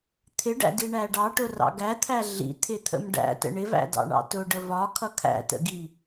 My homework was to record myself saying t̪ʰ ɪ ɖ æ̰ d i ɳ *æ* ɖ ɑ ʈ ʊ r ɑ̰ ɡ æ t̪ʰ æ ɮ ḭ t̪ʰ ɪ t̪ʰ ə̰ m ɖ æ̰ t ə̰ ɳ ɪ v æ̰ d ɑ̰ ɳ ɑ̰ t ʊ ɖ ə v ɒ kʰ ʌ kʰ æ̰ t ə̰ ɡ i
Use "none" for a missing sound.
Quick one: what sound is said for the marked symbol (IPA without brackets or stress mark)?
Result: æ